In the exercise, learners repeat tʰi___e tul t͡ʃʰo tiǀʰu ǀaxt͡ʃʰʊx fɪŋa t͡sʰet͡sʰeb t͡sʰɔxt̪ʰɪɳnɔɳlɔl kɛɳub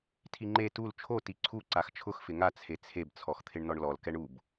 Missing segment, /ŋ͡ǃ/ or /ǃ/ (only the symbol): ŋ͡ǃ